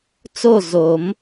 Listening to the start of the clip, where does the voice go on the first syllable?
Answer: falling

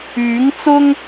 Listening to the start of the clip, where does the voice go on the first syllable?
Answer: rising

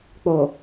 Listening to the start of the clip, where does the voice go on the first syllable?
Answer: low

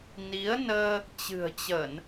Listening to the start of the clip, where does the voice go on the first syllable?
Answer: rising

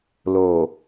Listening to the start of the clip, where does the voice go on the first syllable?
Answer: low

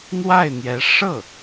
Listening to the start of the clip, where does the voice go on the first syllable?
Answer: falling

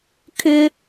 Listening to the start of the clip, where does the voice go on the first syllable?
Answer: high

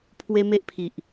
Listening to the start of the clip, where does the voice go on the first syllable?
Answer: high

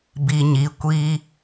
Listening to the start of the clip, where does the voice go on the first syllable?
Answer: low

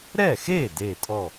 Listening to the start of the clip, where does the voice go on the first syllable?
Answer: falling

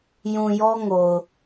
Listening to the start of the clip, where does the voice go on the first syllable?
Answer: low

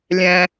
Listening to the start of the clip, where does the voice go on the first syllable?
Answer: high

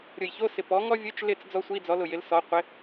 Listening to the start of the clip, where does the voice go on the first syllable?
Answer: low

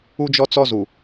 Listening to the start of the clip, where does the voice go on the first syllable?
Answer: high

